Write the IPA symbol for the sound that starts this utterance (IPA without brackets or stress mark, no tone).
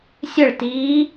sʲ